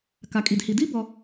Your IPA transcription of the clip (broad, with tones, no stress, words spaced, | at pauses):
ka˩kʼi˩dhi˩di˥ bɔ˨